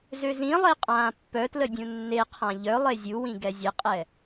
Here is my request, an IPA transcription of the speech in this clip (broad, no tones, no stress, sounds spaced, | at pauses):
z ø z ĩ lˠ e qʼ ãː pː œ t l ə dʲ ũ nː e qʰ ã ʎ œ lˠ e zʲ u w ĩ ɡ ɛ zʲ ə qʼ ɛ